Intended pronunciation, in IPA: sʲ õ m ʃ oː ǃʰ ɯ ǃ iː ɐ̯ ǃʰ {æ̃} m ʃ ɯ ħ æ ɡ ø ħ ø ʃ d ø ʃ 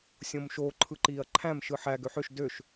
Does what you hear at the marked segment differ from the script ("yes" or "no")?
no